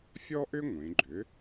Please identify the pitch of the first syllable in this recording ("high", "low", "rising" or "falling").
high